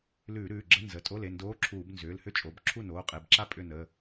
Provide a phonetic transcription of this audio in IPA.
l ʉː˧˩˧ ɾ ʉː˩˧˩ ɡ͡ǁ ə˧˥˧ n z ə˩˧˩ tʼ o˧˥˧ l e˩˧˩ n d oː˧˥˧ ǁʰ uː˧˩˧ b n z ʏː˩˧˩ l h ʏ˥˩ t͡ʃʼ o˩˧˩ b ǁʰ u˥˩ n oː˩˧˩ qʼ e˩˧˩ b ǁ a˥˩ pʼ ʏ˥˩ n ə˩˧˩

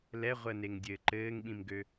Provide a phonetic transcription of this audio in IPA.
l ɛ ʁʷ əː n e ŋ dʲ ɘː ǃ ɘː ŋ ɓ ĩ m ɡ ø

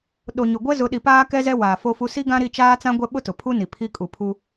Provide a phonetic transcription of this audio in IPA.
ɗ o˨ ɲ ʊ˨ ɡʷ ɛ˦ z ʊ˨˦ ɗ i˨ p aː˦ k ɛ˦ z ɛ˦ w aː˨ f o˦ f u˦ s i˦ ɡ ã˦ ɾ i˦˨ t͡ʃ aː˦ t͡s ã˦ ɡʷ ɛ˦ ɓ ʊ˦ t ʊ˨ pʰ u˦ n i˨ pʰ i˦ kʼ u˨ pʰ u˦

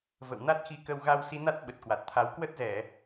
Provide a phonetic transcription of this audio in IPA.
v ə̰˧˨ w n a˦˥ t̚ x i˧ k ə˧ w ɣ a˧ w s i˨˦ n a˦˥ t̚ ɓ ə˨˩ t̚ k w a˨˩ t̚ t̪ʰ a˨˦ w k w ə˦˥ t̚ z ɛ˧˩˨

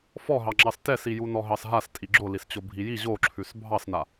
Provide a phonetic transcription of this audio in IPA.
f ɔ ɦ ɑ ŋ͡ǁ ɑ s t ɛ s i j u n ɔ ɦ ɑ s ɦ a s tʼ i ɡ͡ǁ o l i s t͡ɕ o bʱ i j i ʑ o ǁʰ ʉ s bʱ ɑ s n a

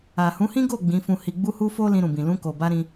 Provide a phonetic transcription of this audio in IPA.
a˨ h ũ˨˦ h ĩ˦ ɡ o˦˨ ɡ͡b ĩ˨˦ f ũ˧ h i˧ ɡ͡b u˦ h u˦ f o˦ l ĩ˧ ɾ ũ˨ b ĩ˨ l ũ˧ k o˨ b a˧ ɾ ĩ˧

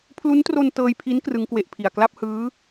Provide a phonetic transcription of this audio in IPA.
pʰ l u˦˥ n t r o˧ n t ɤː˧ j pʰ i˦˥ n k r ɯ˦˥ ŋ k w e˦˥ ʔ pʰ i˨˩ a̯ k l a˥˩ p̚ h ɯː˦˥

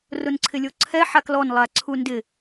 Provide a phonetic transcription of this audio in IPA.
r ʊ n ǀʰ ɪ lʲ o ǀʰ ɛ ħ a k l ɔ n lˠ a ǀʰ u n d ɪ

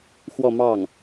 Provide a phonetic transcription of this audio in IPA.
x w ɔ˥˧ m ɑ˥˩ ŋ

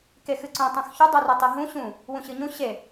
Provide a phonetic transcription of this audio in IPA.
k e x ɨ ǀ ũ tˤ ũ x ç ʉ dˤ u r ɨ tˤ i ɦ ũ ɕ ũ | w ũ ɕ ɨ ɲ ũ ɕ e

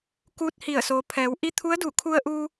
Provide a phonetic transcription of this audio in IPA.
k uː˧ t̚ h i˧˩ ə̯ s oː˩˧ pʰ ɛː˩˧ w ʔ i˧˥ t̪ʰ u˧˥ ə̯ d u˧˩ kʰ u˧ ə̯ ʔ uː˧

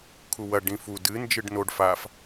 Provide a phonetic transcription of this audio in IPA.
kʰ u w ɐ ɖ ĩ f u d ɨ n d͡ʒ ɨ ɖ n o ɖ f a f

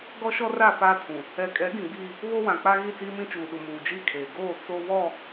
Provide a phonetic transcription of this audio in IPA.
ɡ ɔ˦ ʃ ɔ˦ r a˦˨ f aː˦ tʰ ũ˨ | ɛ˨ kʼ ɛ˨˦ ɡ ĩ˨ ɡ͡b iː˦ | β o˦ w ã˨ k͡p a˦ ɣ i˦˨ t͡s iː˦ m ĩ˦ t͡ʃ uː˨ ɗ u˨ m uː˨ d͡ʒ i˦˨ kʰ eː˨ ɡ oː˦˨ t͡s o˦ β ɔ˦˨

